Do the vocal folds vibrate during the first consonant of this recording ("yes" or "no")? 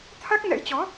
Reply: no